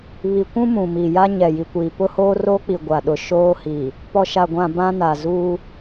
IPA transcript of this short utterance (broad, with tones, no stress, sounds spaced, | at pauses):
β i˨ kʷ ũ˦ m ũ˨ m i˨ j a˦ ɲ ɛ˨ j i˨ kʷ iː˨ p ʊ˦ h oː˦ r oː˦ k͡p i˨ ɡʷ a˨ ɗ ʊ˨ ʃ oː˦ h i˨ | p ɔ˨ ʃ a˨ ɡʷ ã˨ b ã˦ n a˨ z uː˦